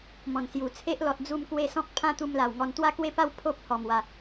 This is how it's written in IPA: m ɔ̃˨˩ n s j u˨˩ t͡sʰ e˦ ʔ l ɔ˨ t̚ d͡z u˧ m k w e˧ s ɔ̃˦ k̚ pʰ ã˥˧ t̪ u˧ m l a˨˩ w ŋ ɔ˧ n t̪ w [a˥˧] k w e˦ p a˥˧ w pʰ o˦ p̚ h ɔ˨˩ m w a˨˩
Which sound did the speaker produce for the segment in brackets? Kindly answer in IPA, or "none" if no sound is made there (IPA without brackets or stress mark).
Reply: a˥˧